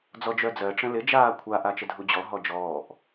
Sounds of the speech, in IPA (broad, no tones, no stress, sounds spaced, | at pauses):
d͡z ɔ d͡ʒ œ d͡z ɜ ʈ͡ʂ ə̃ l ɪ d͡ʒ aː kʷʰ a ʔ a t͡ʃ ə dʱ u d͡ʑ ɔ ɦ ɔ d͡ʒ ɔː ʔ